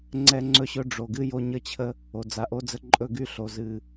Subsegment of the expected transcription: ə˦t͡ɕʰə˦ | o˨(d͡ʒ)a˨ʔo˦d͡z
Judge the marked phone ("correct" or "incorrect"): incorrect